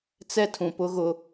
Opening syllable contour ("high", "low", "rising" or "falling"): high